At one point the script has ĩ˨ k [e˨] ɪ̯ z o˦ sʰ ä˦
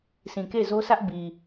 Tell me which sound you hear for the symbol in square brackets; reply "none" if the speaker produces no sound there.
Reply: e˦˨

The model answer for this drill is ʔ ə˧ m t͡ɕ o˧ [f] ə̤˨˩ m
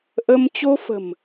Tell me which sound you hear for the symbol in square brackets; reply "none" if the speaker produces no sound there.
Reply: f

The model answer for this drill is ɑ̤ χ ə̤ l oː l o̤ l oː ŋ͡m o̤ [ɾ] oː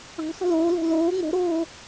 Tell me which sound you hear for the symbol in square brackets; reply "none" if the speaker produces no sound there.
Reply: ɾ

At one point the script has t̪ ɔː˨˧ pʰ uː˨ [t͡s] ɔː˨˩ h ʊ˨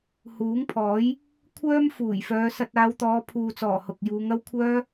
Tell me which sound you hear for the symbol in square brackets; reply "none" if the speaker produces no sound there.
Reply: t͡s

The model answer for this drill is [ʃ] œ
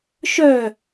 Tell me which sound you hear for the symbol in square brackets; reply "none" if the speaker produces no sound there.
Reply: ʃ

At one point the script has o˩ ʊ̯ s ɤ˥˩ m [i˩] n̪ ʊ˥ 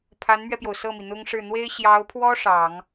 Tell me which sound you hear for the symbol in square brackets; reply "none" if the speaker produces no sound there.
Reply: i˩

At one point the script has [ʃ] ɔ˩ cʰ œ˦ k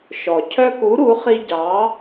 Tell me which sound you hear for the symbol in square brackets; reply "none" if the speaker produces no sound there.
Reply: ʃ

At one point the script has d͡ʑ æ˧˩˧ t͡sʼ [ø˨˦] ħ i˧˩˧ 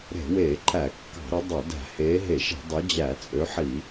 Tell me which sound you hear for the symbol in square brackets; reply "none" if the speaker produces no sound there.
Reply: ø˨˦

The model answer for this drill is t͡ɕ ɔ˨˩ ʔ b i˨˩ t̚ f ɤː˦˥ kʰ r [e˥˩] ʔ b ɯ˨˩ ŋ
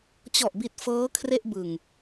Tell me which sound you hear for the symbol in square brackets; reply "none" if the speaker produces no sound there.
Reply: e˥˩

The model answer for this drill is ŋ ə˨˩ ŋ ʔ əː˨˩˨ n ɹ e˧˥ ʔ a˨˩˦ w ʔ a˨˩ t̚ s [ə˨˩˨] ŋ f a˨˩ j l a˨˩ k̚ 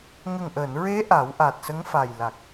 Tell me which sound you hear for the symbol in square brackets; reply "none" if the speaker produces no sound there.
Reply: ə˧˥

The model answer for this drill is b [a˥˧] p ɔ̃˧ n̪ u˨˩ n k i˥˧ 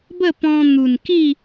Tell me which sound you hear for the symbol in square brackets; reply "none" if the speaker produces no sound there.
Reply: ə˥˧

